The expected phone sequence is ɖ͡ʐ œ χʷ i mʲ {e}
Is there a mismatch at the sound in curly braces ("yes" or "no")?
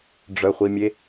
no